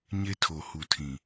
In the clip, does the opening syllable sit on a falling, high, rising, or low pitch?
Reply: high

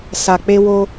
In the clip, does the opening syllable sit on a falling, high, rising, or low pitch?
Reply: low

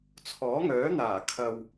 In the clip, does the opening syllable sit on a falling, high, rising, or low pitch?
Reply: rising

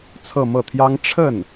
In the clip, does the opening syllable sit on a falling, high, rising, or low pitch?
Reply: falling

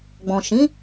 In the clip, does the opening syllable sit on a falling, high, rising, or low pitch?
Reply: low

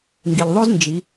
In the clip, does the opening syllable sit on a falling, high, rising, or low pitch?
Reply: low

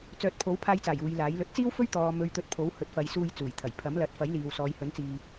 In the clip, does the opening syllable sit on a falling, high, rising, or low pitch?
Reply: rising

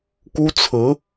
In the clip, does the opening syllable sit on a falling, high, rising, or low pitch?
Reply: high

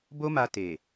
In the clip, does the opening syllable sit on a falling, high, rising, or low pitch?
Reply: high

